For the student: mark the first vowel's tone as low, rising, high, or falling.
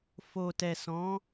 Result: low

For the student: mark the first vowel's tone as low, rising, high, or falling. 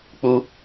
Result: high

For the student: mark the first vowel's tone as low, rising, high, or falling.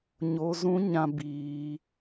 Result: high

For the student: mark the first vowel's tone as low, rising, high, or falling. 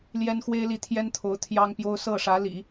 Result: high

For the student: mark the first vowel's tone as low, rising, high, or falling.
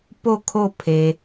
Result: falling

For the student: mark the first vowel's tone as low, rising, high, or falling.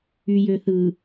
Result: low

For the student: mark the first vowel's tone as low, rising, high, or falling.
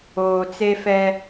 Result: low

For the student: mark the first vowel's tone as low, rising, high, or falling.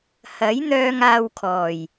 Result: rising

